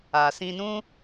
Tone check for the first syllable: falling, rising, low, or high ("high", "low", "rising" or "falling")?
low